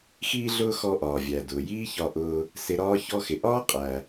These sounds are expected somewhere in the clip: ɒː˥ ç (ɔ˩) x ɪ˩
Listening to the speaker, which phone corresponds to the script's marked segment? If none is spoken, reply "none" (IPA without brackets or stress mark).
ɔ˥